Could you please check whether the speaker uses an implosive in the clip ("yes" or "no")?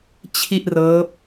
no